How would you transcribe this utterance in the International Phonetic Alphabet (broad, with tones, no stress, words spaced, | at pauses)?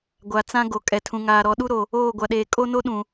ɡʷa˨ t͡sã˦ ɡo˨ kʼɛ˨tʰũ˨ŋaː˨ ɾɔ˨ɗu˦ɾo˨ | oː˦˨ ɡʷa˨ɗeː˨ kʼo˦ no˦ɗũ˨